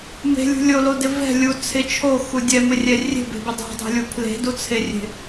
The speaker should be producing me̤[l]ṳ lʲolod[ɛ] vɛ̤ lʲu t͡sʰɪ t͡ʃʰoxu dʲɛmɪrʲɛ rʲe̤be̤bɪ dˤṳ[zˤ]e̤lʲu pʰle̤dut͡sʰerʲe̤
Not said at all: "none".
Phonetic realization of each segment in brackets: lʲ, ɪ, dˤ

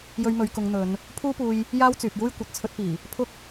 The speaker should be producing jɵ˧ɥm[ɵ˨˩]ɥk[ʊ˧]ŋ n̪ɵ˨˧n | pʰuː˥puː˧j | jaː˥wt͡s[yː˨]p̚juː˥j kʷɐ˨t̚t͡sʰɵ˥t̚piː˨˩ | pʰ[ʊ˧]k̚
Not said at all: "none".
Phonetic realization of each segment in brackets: ɵ˨˧, ʊ˨˧, yː˨, ʊ˥

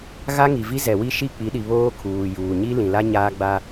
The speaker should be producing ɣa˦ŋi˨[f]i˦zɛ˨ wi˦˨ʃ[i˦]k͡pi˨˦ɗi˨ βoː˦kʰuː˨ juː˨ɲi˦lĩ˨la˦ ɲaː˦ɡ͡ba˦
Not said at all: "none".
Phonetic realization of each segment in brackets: v, i˦˨

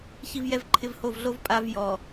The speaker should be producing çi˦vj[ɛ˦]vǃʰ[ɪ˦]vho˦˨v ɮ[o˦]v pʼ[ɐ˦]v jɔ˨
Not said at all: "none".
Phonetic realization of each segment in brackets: ɛ˦, ɪ˦˨, o˦, a˦

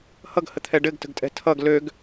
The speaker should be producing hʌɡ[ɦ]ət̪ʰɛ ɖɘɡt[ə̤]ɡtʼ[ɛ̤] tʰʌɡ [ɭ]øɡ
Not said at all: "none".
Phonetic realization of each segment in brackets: h, ə̤, ɛ̤, l

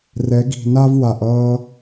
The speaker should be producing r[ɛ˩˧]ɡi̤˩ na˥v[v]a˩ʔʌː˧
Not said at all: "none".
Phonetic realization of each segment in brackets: ɛ˩˧, w

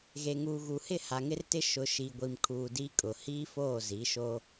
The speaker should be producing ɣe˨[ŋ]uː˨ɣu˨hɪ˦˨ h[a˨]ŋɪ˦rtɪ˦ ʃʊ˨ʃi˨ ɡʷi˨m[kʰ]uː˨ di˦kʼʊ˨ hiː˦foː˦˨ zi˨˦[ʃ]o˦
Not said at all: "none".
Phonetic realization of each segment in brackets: ŋ, a˨, kʰ, ʃ

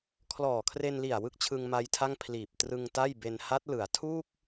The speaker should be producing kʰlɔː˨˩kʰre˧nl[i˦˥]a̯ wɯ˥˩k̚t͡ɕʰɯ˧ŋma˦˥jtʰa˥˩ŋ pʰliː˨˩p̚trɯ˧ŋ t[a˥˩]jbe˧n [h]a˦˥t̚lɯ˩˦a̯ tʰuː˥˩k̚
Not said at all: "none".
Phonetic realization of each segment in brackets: i˨˩, a˥˩, h

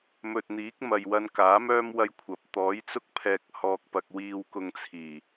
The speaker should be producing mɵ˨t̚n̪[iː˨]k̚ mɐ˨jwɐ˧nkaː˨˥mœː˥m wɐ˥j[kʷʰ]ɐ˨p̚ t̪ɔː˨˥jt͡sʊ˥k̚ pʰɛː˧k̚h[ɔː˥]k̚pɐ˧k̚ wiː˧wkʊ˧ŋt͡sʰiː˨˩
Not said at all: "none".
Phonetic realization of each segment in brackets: iː˨˥, kʷʰ, ɔː˧

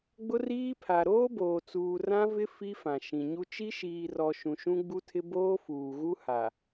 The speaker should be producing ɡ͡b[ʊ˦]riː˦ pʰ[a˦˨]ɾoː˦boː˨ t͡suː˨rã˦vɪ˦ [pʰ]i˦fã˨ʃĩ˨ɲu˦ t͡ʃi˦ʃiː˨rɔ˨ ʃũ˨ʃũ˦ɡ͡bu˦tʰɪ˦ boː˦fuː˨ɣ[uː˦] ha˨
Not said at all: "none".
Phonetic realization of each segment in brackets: ʊ˦, a˨, f, u˦

